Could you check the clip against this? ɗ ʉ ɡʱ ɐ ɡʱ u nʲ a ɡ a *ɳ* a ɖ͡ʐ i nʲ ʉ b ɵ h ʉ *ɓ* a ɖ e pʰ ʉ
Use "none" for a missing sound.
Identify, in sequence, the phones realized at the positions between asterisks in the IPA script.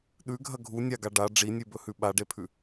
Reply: ɖ, ɓ

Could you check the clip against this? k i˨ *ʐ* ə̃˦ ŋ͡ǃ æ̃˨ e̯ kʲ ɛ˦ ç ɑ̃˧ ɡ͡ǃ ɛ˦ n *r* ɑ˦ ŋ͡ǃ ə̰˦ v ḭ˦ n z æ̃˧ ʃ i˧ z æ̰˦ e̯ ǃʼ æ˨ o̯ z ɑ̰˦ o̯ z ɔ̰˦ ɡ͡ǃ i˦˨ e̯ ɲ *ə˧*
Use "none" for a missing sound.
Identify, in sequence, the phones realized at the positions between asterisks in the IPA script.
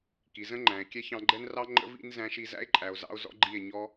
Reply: z, r, ɔ˧

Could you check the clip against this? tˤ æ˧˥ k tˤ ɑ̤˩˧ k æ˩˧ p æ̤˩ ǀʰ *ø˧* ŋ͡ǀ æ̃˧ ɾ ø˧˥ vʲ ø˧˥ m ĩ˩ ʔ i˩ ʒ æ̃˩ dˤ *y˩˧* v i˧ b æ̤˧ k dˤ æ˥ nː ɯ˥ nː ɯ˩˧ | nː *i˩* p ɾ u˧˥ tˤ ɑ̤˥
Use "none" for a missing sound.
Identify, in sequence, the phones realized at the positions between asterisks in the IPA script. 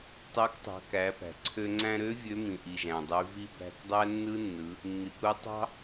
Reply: ø˧, y˩˧, i˩

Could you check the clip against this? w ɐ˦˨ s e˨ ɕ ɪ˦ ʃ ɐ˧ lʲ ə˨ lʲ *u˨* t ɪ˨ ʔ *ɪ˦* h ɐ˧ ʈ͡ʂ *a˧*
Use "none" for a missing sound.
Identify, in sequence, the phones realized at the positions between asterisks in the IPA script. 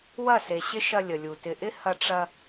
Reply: u˨, ɪ˦, ɐ˧

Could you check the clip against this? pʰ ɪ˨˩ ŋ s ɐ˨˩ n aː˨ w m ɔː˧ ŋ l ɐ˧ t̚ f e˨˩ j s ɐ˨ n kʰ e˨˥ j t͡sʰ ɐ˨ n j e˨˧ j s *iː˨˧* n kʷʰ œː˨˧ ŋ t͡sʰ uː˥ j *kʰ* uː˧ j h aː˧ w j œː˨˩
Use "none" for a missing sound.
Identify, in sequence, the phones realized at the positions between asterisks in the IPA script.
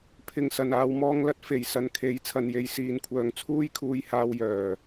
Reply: iː˨˧, kʰ

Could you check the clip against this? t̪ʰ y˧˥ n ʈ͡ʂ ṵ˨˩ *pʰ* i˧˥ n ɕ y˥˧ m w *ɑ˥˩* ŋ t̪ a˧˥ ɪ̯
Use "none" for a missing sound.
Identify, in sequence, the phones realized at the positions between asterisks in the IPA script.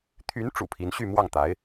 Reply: pʰ, ɑ˥˩

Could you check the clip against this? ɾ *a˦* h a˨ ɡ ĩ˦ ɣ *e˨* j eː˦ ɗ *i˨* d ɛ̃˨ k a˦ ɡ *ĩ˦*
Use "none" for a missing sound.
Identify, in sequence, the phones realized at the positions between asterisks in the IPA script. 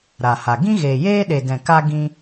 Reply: a˨, eː˨, e˨, ĩ˦

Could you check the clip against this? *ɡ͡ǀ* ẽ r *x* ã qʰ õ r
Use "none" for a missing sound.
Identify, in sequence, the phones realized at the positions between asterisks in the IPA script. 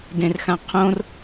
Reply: d, x

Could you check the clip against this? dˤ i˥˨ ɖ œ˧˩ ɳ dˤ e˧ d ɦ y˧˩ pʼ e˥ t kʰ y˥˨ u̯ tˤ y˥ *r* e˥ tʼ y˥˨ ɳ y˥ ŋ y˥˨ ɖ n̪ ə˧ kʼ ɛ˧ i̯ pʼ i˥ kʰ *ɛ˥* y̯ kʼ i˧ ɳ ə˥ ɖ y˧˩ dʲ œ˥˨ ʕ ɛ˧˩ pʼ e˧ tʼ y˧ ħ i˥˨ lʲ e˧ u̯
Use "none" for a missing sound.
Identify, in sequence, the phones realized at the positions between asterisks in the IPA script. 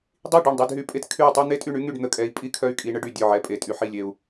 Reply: n̪, œ˥

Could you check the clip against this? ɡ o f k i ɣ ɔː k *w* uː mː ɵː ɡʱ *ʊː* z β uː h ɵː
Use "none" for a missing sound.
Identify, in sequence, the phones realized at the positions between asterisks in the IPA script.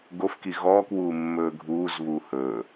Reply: w, uː

